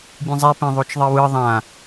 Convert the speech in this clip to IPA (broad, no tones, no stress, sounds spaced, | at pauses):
bʲ ẽ zˤ ɛ p ẽ ðˤ o t͡ʃ ðˤ i w ɯ ðˤ ã